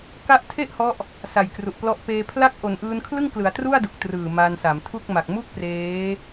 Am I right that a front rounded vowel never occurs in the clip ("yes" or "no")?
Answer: yes